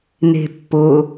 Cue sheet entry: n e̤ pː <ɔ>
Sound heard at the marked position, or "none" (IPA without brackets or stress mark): ʊ